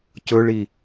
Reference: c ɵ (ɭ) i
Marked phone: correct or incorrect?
correct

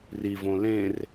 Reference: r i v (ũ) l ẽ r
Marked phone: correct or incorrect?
incorrect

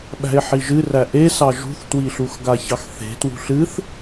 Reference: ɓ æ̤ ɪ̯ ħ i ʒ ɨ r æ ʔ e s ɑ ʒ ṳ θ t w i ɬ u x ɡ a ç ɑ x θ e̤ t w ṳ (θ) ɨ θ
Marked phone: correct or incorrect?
incorrect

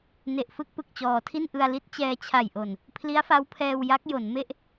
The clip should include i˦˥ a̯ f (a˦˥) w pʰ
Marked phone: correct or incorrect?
correct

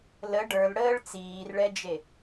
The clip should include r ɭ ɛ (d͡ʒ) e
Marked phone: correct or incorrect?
correct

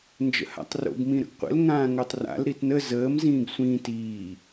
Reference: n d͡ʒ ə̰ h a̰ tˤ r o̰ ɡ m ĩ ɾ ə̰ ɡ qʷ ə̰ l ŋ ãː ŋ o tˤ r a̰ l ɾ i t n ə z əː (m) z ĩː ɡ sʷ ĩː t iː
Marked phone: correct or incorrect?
correct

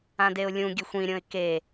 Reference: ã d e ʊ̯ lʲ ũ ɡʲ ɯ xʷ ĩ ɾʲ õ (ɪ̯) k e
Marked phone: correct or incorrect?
correct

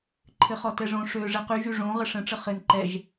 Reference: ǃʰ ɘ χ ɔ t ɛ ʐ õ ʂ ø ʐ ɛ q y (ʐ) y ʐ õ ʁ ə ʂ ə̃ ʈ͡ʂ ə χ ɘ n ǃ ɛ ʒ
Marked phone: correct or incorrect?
incorrect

